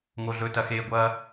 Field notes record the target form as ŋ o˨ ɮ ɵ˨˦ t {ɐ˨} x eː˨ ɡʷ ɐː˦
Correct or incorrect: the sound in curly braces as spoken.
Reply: correct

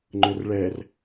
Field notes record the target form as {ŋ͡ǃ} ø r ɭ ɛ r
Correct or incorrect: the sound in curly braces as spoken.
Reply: correct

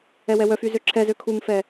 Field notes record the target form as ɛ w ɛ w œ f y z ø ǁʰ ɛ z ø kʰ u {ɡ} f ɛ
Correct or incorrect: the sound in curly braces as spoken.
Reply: incorrect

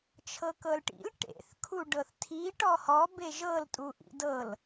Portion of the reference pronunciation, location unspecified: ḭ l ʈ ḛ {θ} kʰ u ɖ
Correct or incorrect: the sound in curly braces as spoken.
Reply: correct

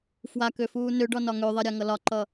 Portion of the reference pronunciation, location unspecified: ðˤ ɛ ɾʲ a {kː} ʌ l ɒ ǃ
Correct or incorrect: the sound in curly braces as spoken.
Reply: incorrect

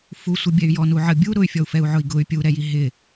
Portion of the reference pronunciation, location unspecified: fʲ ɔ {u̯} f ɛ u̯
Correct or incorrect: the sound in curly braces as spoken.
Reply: correct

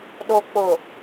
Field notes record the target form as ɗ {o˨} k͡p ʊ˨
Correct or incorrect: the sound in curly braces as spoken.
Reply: correct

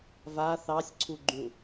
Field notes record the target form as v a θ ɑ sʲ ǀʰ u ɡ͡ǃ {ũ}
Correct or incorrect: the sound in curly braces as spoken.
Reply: correct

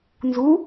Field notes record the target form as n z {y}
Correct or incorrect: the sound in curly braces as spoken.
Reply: incorrect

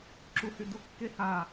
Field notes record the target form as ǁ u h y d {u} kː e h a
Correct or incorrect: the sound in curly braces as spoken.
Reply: correct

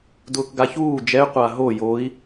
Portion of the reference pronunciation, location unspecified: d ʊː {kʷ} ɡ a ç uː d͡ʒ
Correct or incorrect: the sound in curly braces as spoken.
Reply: incorrect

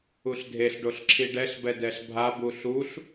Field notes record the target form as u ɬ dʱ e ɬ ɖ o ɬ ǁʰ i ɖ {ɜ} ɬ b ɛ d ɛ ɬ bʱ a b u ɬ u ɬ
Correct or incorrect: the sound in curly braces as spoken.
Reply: incorrect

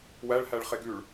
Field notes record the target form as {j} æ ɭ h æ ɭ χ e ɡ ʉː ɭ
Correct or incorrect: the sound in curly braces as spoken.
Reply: incorrect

